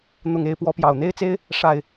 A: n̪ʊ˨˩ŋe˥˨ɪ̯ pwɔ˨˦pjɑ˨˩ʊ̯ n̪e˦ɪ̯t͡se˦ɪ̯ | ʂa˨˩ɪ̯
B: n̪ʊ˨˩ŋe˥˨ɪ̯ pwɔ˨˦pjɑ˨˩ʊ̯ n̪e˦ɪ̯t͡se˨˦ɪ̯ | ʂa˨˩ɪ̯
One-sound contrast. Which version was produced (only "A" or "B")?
A